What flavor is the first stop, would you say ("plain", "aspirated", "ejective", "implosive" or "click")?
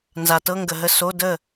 plain